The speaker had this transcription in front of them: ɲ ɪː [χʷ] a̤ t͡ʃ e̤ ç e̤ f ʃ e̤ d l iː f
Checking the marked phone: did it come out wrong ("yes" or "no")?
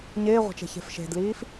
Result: yes